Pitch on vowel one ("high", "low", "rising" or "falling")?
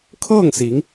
falling